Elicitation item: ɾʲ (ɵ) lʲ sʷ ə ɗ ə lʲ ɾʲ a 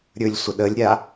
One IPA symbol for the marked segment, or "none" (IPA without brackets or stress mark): ɵ